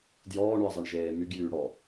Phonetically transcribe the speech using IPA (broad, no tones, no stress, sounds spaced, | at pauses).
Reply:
d j ɔː ɳ ʉ ɐ̯ zˤ i ɳ ʒ eː m y ɡ j yː ɽ ɔ